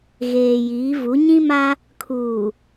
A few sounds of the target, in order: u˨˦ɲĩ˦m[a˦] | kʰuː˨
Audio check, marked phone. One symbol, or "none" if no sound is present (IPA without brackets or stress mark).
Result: a˦